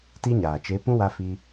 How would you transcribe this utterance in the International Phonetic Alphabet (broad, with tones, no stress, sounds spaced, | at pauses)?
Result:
t i˦ ɲ aː˨ t͡ʃ e˨˦ p ũ˦ w a˧ f i˧